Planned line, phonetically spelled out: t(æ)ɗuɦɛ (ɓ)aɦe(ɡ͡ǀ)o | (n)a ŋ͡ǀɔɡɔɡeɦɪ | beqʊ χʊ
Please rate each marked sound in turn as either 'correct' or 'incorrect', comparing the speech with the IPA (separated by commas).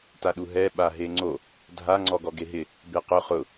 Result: incorrect, correct, incorrect, incorrect